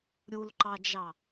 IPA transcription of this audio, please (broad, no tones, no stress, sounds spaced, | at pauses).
ɾʲ u l ǃ ɑ d͡ʒ ɑ